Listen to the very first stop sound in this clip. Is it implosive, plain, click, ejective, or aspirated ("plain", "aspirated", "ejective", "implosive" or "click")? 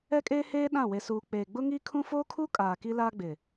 ejective